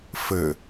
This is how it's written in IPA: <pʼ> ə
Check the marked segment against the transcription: incorrect: f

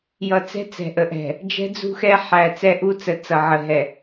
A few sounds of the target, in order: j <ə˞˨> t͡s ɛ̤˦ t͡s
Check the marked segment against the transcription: incorrect: ʌ˨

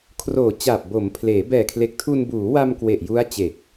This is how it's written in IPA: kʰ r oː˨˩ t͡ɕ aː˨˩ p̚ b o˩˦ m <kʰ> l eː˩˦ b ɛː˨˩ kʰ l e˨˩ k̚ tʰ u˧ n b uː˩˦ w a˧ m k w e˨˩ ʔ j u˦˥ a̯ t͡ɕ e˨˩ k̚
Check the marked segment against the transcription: incorrect: pʰ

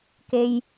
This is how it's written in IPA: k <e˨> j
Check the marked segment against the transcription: correct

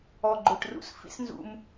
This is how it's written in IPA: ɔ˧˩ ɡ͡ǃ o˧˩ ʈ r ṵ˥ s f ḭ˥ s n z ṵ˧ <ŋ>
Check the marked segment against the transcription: incorrect: m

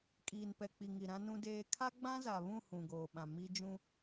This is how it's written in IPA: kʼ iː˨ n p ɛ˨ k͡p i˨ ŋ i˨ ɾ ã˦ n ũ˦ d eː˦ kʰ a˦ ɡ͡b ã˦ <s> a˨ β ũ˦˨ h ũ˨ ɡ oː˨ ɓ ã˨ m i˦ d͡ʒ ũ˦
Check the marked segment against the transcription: incorrect: z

